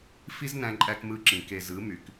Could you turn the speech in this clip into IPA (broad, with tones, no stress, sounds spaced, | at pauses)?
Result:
f i˦ z n æ̃˦ ǃʼ æ˦ k m ɯ˦ ǁ ĩ˨ k e˨ z ɯ˨˦ m y˨ k